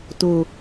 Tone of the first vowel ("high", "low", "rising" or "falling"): low